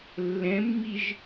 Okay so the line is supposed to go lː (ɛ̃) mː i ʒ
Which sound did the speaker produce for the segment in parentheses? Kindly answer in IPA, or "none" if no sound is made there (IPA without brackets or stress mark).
ɛ̃